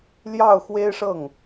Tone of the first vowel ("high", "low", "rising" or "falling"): falling